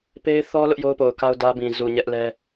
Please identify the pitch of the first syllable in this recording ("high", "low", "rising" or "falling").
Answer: high